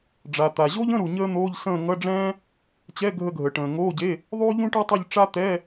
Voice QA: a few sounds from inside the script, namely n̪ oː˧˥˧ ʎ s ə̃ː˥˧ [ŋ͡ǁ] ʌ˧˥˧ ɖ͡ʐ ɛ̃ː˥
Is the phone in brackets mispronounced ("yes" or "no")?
yes